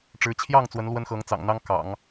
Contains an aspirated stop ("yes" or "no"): yes